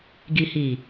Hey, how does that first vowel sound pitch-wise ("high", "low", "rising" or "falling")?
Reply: low